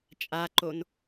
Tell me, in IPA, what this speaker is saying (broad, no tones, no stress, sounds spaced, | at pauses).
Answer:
t͡ʃʼ a ǃ o n